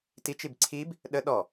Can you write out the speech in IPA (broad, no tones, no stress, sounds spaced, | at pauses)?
t i t͡ʃ i b ǀʰ i b | ɗ ə ɗ ɔ